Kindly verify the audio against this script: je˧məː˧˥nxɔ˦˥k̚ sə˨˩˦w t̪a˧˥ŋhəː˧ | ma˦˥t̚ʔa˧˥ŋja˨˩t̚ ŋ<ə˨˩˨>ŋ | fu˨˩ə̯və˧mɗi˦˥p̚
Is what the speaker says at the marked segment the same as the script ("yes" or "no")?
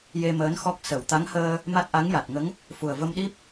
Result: no